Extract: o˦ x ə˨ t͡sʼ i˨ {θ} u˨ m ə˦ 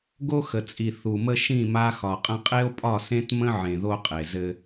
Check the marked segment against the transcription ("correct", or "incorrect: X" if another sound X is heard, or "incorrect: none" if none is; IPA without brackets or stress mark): correct